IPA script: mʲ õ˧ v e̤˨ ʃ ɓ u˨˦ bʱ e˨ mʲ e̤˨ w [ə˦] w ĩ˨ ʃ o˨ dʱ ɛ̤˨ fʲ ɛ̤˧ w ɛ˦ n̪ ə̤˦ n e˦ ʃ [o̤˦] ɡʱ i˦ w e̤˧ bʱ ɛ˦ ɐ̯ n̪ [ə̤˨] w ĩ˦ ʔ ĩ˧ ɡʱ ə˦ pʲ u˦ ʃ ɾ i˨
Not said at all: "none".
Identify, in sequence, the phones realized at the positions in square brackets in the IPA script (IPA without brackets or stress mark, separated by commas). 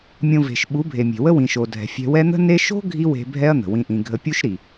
ə˦, o̤˦, ə̤˨